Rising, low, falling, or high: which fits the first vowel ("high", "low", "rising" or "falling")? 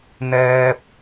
high